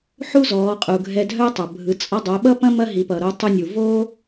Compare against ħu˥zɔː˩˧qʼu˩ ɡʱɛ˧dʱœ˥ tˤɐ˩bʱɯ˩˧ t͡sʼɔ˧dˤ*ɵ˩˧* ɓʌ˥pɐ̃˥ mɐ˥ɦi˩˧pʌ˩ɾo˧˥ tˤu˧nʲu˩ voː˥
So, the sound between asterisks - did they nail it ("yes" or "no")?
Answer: no